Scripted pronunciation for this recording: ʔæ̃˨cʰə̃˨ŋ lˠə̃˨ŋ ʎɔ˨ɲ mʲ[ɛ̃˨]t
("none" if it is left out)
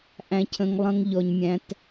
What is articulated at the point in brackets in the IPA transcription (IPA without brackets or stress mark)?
æ̃˨